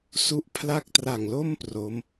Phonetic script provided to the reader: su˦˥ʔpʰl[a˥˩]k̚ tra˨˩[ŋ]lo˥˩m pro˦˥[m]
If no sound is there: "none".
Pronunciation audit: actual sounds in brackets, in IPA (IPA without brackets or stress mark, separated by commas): a˥˩, ŋ, m